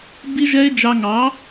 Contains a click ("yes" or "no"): no